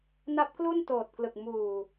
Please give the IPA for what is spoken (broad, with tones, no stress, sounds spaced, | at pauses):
n a˦˥ p̚ k l u˥˩ n t oː˨˩ t̚ k l ɯ˨˩ k̚ m uː˨˩